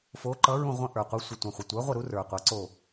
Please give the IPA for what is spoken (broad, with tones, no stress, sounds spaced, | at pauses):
f o˨˥ ǃ ʌ˨˥ ɹ ũ˦˨ ʁʷ ə̃˦˨ ʔ ə˞˨˩ qʷ ʌ˨˥ sʷ ə˨˩ tʷ ə̃˨˩ χʷ ə˨˩ tʷ ə˞˨˥ ʁʷ ə˦˨ ɾ u˨˥ r ə˞˨˩ qʷ ʌ˨˥ ǀ o˦˨